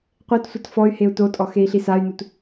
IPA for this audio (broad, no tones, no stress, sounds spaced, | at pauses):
qʷ e t sʷ ɐ t f ɔ y̯ h e u̯ t o tʼ ɔ x e i̯ ɬ i s a y̯ n u t